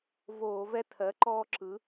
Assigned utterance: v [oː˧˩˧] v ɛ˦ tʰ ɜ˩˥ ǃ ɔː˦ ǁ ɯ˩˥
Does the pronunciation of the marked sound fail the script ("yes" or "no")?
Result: no